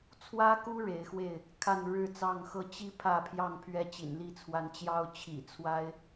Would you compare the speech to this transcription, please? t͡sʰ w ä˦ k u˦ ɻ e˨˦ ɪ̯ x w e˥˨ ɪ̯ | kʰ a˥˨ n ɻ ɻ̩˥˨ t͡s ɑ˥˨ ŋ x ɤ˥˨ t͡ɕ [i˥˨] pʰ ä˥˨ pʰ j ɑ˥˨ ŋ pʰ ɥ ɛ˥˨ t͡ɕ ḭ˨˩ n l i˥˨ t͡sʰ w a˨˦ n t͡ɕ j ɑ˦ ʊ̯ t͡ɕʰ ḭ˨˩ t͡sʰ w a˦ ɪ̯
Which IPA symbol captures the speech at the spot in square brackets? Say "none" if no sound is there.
i˦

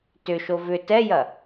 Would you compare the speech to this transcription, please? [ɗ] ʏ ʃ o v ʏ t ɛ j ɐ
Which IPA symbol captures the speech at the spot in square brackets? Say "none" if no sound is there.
t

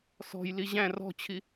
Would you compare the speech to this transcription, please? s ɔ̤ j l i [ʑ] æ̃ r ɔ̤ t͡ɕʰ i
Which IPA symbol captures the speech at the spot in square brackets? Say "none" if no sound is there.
ʑ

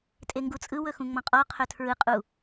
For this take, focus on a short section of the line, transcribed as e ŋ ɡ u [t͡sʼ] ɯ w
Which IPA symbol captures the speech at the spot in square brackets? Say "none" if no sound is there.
t͡sʼ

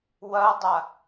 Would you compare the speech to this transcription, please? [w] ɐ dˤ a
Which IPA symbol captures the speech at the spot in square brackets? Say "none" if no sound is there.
w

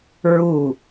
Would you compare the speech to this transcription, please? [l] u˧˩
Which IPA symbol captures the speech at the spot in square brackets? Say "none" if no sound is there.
ɹ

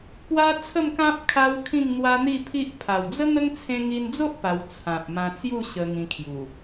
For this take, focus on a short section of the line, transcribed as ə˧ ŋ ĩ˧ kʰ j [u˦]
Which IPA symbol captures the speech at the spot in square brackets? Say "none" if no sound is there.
u˨˩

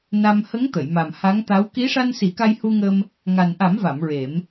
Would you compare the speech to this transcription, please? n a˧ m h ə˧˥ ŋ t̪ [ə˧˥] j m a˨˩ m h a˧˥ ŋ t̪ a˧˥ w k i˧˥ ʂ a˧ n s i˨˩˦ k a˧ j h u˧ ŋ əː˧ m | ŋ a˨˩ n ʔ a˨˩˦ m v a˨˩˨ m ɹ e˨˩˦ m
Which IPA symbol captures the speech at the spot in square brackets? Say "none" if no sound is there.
ə˨˩˨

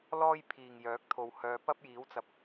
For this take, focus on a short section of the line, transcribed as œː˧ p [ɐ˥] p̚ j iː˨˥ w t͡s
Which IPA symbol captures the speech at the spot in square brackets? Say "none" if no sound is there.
ɐ˥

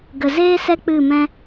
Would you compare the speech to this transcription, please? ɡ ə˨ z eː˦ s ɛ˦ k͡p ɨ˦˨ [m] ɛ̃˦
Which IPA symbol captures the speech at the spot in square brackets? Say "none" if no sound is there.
m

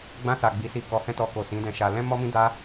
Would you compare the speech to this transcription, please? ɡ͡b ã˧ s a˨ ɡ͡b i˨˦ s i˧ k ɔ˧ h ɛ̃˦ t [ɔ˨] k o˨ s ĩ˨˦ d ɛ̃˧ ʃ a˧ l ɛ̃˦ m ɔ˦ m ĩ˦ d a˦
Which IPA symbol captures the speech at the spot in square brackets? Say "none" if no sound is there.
ɔ˧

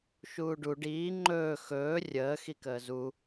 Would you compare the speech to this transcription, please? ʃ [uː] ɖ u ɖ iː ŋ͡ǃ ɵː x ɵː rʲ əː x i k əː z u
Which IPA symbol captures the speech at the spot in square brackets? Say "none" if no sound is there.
uː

